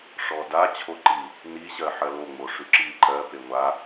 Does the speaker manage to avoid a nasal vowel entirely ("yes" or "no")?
yes